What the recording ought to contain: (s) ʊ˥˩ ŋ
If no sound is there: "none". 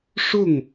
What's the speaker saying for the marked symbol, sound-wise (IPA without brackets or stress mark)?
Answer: ʂ